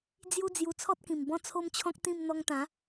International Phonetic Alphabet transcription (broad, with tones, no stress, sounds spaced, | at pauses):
d͡z j u˦ d͡z j u˧ t͡sʰ ɔ˦ t̚ k ĩ˨˩ m b ɔ̃˦ t͡sʰ o˦ m t͡ɕʰ ɔ̃˦ k̚ t̪ ĩ˥˧ m n̪ ɔ˧ ŋ t̪ ã˨˦